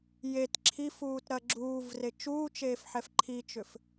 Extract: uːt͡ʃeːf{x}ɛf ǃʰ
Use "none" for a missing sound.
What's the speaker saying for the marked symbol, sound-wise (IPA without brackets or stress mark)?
ħ